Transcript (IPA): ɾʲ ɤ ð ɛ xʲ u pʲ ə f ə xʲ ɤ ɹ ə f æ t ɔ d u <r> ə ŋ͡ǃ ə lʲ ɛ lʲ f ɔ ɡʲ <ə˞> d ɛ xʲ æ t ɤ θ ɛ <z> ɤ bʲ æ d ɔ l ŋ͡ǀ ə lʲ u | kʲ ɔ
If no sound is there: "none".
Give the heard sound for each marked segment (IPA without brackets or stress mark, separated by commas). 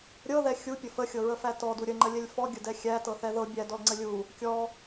ɾʲ, ə, ð